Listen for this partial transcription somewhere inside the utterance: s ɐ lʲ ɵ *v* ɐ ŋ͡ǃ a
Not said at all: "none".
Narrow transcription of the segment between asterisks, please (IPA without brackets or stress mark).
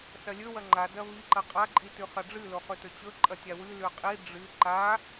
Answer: w